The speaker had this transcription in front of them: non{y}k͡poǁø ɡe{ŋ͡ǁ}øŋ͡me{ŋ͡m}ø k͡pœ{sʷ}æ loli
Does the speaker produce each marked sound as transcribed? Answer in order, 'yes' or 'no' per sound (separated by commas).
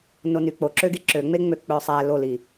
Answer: yes, no, yes, no